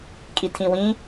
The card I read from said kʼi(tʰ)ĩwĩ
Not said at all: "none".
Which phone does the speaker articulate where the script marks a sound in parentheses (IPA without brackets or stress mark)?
tʰ